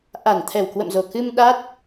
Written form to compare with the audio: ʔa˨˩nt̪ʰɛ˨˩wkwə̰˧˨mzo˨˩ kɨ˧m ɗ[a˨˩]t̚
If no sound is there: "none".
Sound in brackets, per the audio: a˦˥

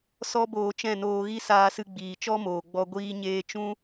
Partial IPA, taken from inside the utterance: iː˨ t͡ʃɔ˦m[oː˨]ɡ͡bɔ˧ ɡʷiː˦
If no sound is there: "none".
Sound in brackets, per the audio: oː˨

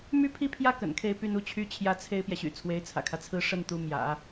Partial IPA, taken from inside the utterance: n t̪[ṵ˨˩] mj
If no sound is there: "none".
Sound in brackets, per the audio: u˧˥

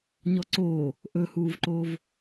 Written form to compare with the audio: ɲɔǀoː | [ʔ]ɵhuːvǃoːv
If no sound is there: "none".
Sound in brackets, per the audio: ʔ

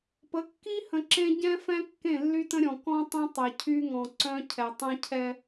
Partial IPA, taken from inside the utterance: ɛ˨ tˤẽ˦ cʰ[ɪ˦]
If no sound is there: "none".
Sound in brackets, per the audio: ɛ˦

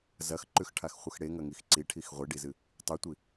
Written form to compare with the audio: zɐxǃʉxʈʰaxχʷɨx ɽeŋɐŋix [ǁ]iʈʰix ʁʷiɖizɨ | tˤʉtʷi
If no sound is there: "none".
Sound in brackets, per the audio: ǀ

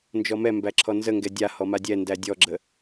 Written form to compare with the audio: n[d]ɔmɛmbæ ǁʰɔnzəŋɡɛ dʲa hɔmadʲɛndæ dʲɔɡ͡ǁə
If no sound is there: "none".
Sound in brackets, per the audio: d͡ʒ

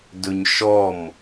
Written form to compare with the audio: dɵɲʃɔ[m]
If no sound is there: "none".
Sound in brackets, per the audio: m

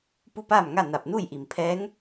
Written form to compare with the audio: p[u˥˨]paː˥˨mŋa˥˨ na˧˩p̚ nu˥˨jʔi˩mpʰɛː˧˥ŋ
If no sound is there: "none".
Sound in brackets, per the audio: u˥˨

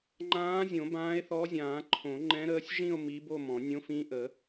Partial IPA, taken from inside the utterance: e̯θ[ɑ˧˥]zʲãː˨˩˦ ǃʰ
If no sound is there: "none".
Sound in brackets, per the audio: ɔ˧˥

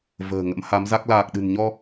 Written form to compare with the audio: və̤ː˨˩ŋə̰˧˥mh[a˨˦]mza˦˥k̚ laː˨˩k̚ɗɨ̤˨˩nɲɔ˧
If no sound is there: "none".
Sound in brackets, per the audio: a˨˦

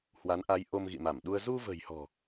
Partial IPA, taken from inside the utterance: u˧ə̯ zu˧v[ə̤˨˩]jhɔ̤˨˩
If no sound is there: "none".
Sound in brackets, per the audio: ə̤˨˩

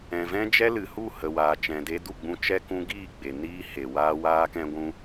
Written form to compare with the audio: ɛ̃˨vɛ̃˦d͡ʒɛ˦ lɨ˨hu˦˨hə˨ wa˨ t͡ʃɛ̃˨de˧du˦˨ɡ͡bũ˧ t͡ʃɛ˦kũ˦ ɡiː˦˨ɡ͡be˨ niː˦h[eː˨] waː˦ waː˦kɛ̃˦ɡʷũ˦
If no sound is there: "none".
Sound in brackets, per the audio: e˨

